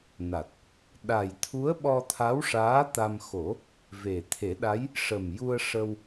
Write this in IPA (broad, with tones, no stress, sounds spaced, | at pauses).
n a˨˩ t̚ | ɗ a˨˩ j t̪ʰ u˧˥ ə̯ ɓ ɔ˧ t̪ʰ a˧˥ w ʂ aː˧˥ t̪ a˧ m x o˨˩˦ | v e˨˩ t̪ʰ e˨˩˦ ɗ a˧˥ j | ʂ ə˨˩ m j u˧ ə̯ ʂ ə˧ w